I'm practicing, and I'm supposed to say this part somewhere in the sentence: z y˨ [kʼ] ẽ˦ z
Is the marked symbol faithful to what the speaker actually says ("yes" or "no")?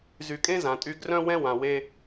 yes